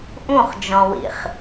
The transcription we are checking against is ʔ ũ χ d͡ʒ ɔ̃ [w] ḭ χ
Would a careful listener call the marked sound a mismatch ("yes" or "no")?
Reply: no